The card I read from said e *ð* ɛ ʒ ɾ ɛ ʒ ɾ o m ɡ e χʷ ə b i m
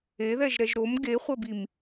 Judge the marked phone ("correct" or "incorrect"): correct